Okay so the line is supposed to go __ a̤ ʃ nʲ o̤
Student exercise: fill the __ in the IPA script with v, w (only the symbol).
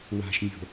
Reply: w